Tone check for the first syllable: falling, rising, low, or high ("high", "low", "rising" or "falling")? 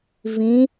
rising